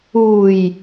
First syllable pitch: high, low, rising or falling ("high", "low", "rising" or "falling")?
low